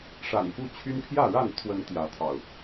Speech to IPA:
ʂ a̰˨˩ n f u˦ t͡ɕʰ y˦ n pʰ j ä˥˨ ɻ a˥˨ n t̪ʰ w ə˨˦ n t̪ j ä˨˦ t̪ʰ ɑ̰˨˩ ʊ̯

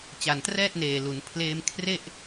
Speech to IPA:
t͡ɕ a˨˩ n t r ɛː˥˩ t̚ n eː˨˩ l u˩˦ n pʰ l eː˧ m kʰ r e˥˩ ʔ

